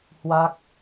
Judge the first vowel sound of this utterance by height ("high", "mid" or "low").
low